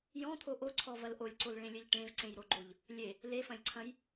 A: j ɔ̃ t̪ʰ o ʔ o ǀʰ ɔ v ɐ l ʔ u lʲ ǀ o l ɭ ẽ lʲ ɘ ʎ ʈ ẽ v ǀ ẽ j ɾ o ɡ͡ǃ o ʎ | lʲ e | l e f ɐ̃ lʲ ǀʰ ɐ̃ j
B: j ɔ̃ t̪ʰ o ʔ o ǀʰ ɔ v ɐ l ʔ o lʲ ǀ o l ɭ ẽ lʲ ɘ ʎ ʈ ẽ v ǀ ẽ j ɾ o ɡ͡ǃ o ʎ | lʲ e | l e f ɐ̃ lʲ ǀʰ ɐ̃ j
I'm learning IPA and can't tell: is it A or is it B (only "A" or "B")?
B